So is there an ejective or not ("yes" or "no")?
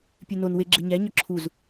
no